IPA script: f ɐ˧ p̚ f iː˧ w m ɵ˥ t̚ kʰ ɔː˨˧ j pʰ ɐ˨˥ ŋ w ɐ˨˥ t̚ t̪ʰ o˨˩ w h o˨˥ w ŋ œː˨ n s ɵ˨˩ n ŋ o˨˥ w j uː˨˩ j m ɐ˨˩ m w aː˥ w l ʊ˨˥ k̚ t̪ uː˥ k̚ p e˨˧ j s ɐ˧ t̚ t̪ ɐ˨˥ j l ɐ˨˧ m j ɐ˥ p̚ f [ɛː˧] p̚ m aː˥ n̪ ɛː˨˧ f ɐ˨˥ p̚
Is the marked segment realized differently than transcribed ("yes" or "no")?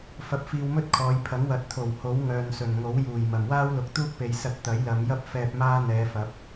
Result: no